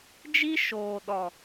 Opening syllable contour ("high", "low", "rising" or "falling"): high